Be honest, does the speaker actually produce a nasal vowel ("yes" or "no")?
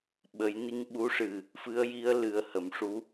no